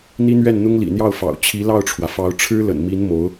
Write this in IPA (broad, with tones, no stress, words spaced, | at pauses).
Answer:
n̪i˥n̪ɥɛ˥˩n n̪ʊ˥ŋlḭ˨˩n̪jɑ˥˩ʊ̯fɑ̰˨˩ʊ̯ t͡ɕʰi˧˥lɑ˥˩ʊ̯ʈ͡ʂʰwä˩fɑ˧˥ʊ̯ ʈ͡ʂʰɻ̩˥lə̰˨˩nmi˧˥n mo˧˥ʊ̯